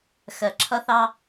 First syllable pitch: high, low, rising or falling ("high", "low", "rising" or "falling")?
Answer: low